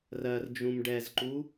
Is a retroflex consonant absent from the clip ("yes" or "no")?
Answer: no